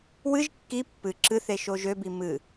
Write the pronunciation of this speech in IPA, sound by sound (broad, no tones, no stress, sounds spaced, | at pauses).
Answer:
w ɨ ʒ kː i pː ɨ ǁ ɨ θ e ʃ o ʒ ø b i m ɨ